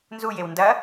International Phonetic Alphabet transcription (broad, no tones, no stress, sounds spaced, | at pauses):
n z u j e w n d ɐ